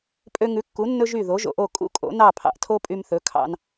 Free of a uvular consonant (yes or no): yes